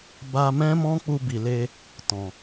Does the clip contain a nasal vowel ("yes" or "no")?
yes